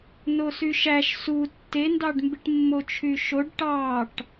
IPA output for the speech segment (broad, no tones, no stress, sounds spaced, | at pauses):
n o s y ʃ æ ʃ s u tː e n d ɑ ɖ m b i ʈ mː o t͡ʃʰ y ʃ o ɖ ʈ ɑ ʈ